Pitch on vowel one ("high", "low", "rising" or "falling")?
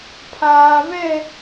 low